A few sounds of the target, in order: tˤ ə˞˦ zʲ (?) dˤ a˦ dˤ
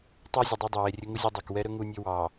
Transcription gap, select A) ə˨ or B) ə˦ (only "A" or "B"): A